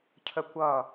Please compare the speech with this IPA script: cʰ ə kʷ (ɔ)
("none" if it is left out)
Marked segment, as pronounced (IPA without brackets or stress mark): ʌ